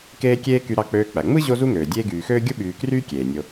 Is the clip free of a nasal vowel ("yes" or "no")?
yes